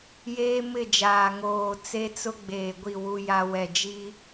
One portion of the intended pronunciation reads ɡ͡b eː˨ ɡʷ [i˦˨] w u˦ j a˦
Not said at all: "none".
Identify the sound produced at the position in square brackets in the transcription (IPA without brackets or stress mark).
i˦˨